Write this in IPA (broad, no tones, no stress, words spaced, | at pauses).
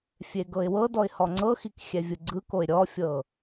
fʲeɡɤɪ̯wɤdɔɪ̯ hɔŋ͡ǀɤxik xʲɛvʲɯɡ͡ǀɯkoɪ̯ ɾʲɔfʲɤ